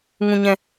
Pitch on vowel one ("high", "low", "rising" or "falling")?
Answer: low